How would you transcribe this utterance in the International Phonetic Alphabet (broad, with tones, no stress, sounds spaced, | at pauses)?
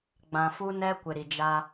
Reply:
ɡ͡b ã˨ f u˦ n ɛ˦ kʷ ɪ˨ ɾ i˨ d͡ʒ a˦